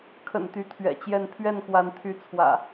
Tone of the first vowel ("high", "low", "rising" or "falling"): low